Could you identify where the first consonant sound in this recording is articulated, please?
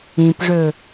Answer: labial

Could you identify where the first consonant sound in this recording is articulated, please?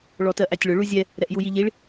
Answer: retroflex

